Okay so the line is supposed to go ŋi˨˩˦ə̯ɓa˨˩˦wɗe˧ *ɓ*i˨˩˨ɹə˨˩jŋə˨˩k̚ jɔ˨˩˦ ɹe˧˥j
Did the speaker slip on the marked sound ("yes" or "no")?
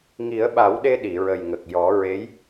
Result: yes